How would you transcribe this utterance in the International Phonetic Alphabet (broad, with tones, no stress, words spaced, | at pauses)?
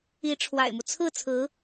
i˧˥ʈ͡ʂʰwa̰˨˩ɪ̯mu˦ t͡sʰɹ̩˥˩t͡sʰɹ̩˧˥